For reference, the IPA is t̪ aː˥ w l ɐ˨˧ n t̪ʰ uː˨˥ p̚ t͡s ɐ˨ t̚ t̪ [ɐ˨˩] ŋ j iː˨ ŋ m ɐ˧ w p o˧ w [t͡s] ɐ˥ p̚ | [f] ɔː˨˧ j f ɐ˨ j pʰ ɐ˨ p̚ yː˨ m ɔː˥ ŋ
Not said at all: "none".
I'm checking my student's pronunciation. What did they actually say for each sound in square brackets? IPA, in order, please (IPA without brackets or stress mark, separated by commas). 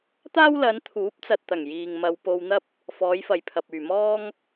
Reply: ɐ˨˩, n̪, f